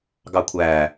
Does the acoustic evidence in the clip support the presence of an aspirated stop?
yes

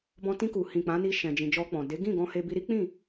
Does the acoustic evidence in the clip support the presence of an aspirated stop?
no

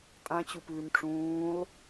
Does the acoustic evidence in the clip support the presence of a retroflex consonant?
yes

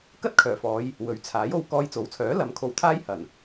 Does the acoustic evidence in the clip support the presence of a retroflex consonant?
no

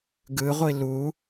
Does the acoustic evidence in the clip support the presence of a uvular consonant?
yes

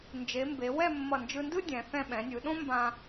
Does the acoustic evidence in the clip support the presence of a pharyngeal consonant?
no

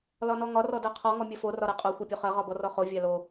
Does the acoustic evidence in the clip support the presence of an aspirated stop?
yes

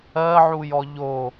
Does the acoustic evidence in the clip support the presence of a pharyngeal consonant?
yes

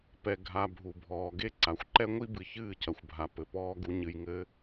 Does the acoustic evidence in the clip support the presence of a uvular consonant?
no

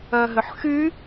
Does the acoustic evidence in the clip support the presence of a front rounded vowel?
yes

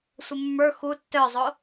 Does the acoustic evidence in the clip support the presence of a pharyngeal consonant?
no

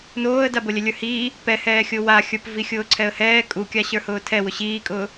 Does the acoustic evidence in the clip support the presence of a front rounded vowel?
no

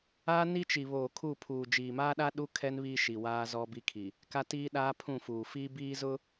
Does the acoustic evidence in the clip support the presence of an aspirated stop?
yes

